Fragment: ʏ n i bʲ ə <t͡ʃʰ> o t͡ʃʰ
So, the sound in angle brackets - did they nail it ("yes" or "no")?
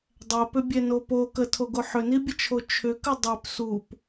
yes